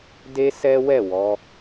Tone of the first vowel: high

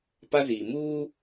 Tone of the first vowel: high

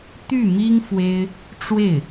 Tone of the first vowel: falling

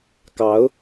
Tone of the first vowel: rising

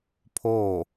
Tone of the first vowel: falling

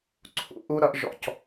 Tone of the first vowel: low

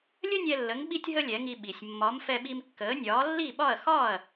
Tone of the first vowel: high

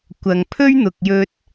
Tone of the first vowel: low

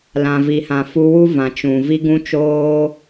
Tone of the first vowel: low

